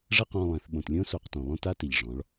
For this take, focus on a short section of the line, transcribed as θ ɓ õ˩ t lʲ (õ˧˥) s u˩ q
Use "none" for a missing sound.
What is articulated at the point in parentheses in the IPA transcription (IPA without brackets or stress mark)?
õ˧˥